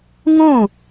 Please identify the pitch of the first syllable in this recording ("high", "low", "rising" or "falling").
falling